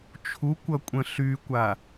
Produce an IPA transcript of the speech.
t͡ʃʰ u kʷ ʌ kʷʼ ə̃ ɬ y kʷ a

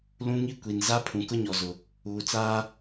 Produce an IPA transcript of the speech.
l ũ˦ ŋ i˦ kʷ i˨ n z a˦ pʰ ũ˨ k ʊ˦ ɲ ɔ˨ z ʊ˨ | uː˨ t͡s aː˦

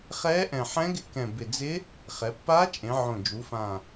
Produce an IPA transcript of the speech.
χ ɛː˧˥ ʔ ɛ̃˨˩ ħ ɛ̃˧˥ ɡ ɪ˧˥ k ɛ̃˨˩ b ɪ˨˩ d͡z ɪ˧˥ | χ ɛ˩˧ pː aː˧˥ t͡ʃʼ ẽ˩˧ ʕ õ˨˩ d͡ʒ u˩˧ f ã˨˩

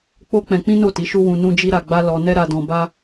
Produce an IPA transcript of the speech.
k͡p o˦ k͡p ɛ̃˧ k͡p ĩ˦ n o˦˨ t i˨˦ ʃ u˦ w ũ˧ n ũ˦ d͡ʒ i˦ ɾ a˧ ɡ͡b a˦ l ɔ˧ n ɛ˦ ɾ a˧ d ɔ̃˧ b a˦

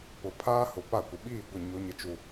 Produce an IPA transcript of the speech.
p ʊ˨ pʰ aː˦ h ʊ˨ p a˦˨ kʷ ɪ˨ ɓ iː˦˨ ɡʷ ɪ˦˨ ɲ o˦ ɲ ɪ˦ t͡ʃ u˦

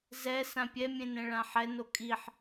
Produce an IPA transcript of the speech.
z ɛ s ã pʲ ɛ mʲ ẽ n ɛ̃ ɭ ã ħ ɛ n o kʼ i ħ

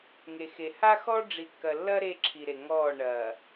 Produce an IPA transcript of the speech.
ŋ e˨ x e˨ h a˦ x ɔ˦ ɖ͡ʐ i˨ kː ɐ˨ lː ɐ˦ ɾ e˦ ǁʰ i˨ ɾ e˨ ŋ ɔː˦˨ ɳ ɐː˨

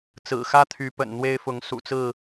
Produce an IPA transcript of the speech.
t͡s ɹ̩˨˩ x ä˦ t̪ʰ y˨˦ p ə̰˨˩ n n̪ w e˦ ɪ̯ f ʊ˨˦ ŋ s ṵ˨˩ t͡s ɹ̩˥˨

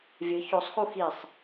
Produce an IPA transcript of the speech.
vʲ ɨ ç o sˤ x u x i sˤ

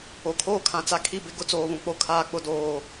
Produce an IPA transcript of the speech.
o˨ kʰ oː˦ kʰ ã˨ t͡s a˦ kʰ i˦˨ b ɪ˦ ɡ ʊ˦ t͡s oː˨ β ũ˨ k͡p o˦ kʰ aː˦ k͡p ʊ˦ d oː˦

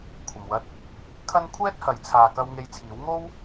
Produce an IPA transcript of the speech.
kʷʰ ɐ˨ m w ɐ˧ t̚ | kʰ ɐ˥ n kʷʰ ɛː˥ t̚ h ɐ˨˥ j t͡sʰ aː˨ k ɐ˧ w ŋ e˧ j t͡sʰ iː˨˥ w ŋ o˥ w

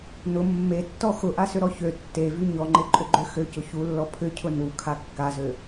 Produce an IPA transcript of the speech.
n ʊ mː e tː ɔ x ʊ ʔ a s ʏ ɾ ɔ ç ø tː e v y ɲ ɔ ŋ͡ǃ e ǃʼ ʏ ɡ͡ǃ ø x ø c ʊ ç u lː ɔ pʰ ʏ cʰ ʊ n u kʰ a kː a z ø

